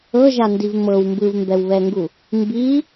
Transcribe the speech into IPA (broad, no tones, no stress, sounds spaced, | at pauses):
ɤ ʒ a n d i v m ɤ w m b ɯ v m b ɛ w β ɛ ŋ ɡ u | m b i